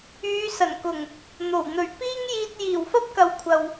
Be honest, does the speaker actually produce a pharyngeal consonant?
no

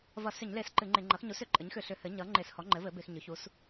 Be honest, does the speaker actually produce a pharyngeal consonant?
no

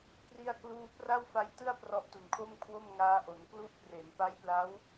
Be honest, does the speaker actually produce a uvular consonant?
no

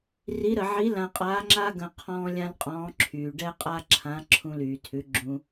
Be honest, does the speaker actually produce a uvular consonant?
yes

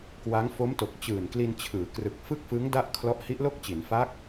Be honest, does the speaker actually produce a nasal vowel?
no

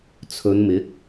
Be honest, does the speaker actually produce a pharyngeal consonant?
no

